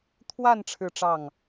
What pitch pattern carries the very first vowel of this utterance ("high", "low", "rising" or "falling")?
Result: falling